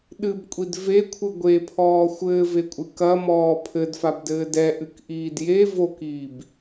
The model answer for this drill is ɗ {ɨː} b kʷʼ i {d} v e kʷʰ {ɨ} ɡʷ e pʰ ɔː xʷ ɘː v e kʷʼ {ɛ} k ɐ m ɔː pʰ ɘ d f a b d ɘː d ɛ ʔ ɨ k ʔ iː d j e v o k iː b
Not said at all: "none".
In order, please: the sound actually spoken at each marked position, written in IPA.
ɨ, d, ɨ, ɨ

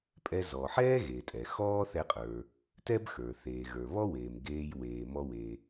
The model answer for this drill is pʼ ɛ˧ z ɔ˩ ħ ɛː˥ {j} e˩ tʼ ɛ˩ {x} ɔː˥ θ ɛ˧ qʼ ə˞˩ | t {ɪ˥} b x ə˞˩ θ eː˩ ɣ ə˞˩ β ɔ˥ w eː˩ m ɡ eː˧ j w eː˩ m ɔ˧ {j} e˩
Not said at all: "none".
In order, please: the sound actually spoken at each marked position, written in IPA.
ɣ, x, ɛ˥, w

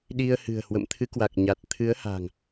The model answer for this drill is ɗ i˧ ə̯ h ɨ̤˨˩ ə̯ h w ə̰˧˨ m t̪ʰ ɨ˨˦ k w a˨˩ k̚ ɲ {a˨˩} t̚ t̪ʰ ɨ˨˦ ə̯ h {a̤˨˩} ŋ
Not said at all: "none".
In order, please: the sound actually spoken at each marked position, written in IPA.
a˨˩, a̤˨˩

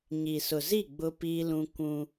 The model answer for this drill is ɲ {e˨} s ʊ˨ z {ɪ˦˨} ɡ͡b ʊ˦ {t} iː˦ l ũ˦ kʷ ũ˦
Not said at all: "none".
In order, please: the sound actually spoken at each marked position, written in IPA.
i˨, i˦˨, p

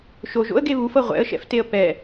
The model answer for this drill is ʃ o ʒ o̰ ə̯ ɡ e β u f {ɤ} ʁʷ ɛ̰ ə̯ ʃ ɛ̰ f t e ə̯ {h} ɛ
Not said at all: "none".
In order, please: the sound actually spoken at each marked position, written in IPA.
ɤ, p

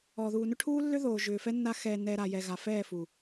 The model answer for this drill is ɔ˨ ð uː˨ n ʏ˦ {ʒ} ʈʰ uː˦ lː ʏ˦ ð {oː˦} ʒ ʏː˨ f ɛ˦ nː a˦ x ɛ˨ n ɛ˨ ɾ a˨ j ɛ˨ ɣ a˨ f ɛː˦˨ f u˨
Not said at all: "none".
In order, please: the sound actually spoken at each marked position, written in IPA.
none, oː˨

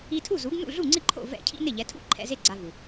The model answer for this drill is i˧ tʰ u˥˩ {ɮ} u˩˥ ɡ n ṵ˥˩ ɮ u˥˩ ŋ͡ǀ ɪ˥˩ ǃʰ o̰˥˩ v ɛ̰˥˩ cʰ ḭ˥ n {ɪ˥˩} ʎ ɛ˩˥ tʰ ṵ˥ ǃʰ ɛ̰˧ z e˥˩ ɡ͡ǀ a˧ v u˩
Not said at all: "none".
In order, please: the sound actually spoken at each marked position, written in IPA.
z, ɪ˥˩

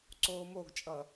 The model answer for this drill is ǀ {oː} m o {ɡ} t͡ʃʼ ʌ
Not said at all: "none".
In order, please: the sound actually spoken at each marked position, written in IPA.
oː, ɡ

